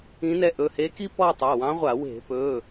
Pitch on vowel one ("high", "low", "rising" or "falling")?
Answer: rising